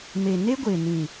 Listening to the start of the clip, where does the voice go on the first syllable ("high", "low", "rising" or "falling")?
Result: low